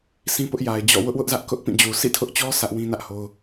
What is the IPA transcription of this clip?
sʰ ĩ˦ p ʊ˦ ʔ j a˨ ɪ̯ d͡ʑ ɔ̰˦˨ w ʊ˦ ʔ w ʊ˦ ʔ z ä˦ ʔ k ʊ˦ ʔ p ĩ˦˨ d͡ʑ u˨ s ḭ˦˨ tʰ ʊ˦ ʔ t͡ɕ ɔ˦ sʰ ä˦ ʔ w ĩ˦ n ä˦ ʔ h o˦ ʊ̯

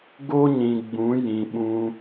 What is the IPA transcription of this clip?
ɡ o˦ ɲ ĩ˨ ɡ͡b ũ˨˦ j ĩ˨ ɓ ũ˧

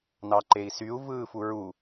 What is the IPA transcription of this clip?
n ɑ ǃ e i̯ s y u̯ v ɯː f u ɹ u

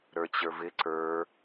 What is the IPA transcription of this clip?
ɾ ə˞ t͡ɕ ə˞ v ɪ ǀ ə˞

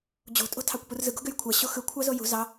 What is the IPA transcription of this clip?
d͡ʑ o̤ tʼ o̤ tʰ ɑ kʷ p u r z ɯ ɡ o̤ ɡ ø j kʷʰ æ ɕ o x ɯ kʷʰ ɑ z o j ṳ z ɑ

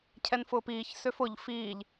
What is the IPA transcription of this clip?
cʰ ɛ n f ʊː p iː ç s ø f ʊ ʎ f iː ʎ

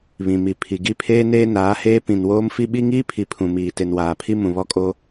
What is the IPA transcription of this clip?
β ĩ˨ m i˨ pʰ i˨ ɡ i˦˨ pʰ eː˦ n eː˦ n aː˨˦ h eː˦ p ĩ˨ n w oː˦ m f i˦ ɓ i˦ ŋ iː˦ pʰ i˨ pʰ ũ˨ m iː˨ t e˨ n w aː˨ pʰ i˦ m ũ˨ β ɔ˦ kʼ o˦

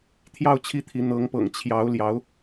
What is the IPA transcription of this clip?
t̪ʰ j ɑ˥˧ ʊ̯ t͡ɕʰ i˥˩ t̪ʰ i˧˥ n̪ ɤ˧˥ ŋ p ɤ̰˨˩ ŋ t͡ɕʰ j ɑ˧˥ ʊ̯ l j ɑ˧˥ ʊ̯

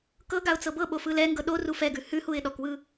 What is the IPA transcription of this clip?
k ɤ ɡ a ʊ̯ t͡s ɤ b ɤ ɓ o f ɯ l ɛ ŋ ɡ ɤ ɗ o r u f ɛ ɡ ʉ h ʉ h u ɪ̯ ɗ ɔ k w ɯ

